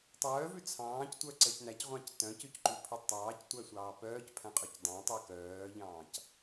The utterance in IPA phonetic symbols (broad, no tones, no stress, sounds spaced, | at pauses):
tˤ œː v ʉ t͡sʰ ɑ̃ː c tʷ œ ǀ ɛ c n æ c ʁʷ ɑ̃ c t œ̃ c ʉ c ǃ ʉ pʰ i tˤ ɑː c tʷ æ sʷ ɑː p œː c pʰ æ̃ qʼ ɵ c dˤ æ̃ tˤ ʉ k œː ʎ ɑ̃ː c